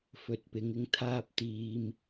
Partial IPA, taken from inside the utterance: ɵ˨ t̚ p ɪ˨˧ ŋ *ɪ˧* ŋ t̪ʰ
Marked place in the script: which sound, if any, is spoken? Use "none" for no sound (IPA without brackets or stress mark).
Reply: ɪ˧